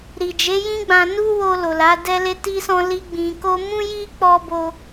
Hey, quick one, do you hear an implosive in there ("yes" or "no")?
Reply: no